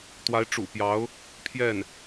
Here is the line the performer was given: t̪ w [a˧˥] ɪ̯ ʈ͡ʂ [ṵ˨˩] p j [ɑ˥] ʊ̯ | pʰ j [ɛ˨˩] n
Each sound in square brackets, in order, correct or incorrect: correct, correct, incorrect: ɑ˧˥, incorrect: ɛ˥˩

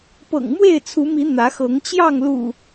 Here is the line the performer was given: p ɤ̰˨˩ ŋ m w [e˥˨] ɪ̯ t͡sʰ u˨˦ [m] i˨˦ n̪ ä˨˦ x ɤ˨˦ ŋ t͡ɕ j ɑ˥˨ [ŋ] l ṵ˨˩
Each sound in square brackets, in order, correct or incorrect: correct, correct, correct

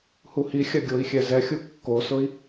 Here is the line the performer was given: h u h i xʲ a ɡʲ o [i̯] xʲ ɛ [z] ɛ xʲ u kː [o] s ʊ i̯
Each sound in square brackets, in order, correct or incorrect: correct, correct, correct

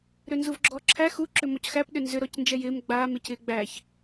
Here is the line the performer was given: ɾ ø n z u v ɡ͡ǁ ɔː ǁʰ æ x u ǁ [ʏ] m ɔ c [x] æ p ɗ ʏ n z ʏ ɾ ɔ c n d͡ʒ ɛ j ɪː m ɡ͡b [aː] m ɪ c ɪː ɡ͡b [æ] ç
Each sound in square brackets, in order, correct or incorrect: correct, correct, correct, correct

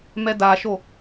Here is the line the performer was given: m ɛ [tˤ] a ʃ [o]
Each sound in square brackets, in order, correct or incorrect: incorrect: d, correct

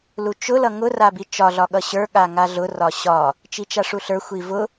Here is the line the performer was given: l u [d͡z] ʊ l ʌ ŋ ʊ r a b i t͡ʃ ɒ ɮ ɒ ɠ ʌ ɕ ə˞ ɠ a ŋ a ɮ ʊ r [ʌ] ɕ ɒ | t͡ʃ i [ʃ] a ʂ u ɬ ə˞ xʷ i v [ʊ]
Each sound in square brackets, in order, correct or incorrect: incorrect: t͡ʃ, incorrect: ɒ, incorrect: t͡ʃ, correct

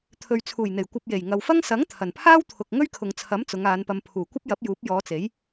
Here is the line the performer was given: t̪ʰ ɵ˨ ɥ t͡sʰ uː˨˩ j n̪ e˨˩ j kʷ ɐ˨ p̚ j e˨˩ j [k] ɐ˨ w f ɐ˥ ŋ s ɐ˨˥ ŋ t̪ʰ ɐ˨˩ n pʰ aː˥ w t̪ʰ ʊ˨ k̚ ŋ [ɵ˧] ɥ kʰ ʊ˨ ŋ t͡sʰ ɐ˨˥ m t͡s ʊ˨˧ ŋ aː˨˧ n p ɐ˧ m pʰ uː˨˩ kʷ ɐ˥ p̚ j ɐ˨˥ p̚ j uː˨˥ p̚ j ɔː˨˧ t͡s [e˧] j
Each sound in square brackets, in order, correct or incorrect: incorrect: ŋ, incorrect: ɵ˥, incorrect: e˨˥

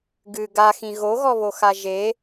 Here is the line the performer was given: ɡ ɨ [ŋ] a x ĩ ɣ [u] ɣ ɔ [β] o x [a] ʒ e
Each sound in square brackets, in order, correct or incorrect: incorrect: ɡ, incorrect: o, correct, correct

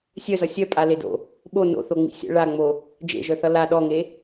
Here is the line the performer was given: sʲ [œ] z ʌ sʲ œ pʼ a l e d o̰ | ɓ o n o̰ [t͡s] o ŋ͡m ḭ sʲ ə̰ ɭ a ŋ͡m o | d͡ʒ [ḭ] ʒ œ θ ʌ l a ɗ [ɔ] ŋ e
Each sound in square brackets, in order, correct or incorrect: correct, incorrect: θ, incorrect: ḛ, correct

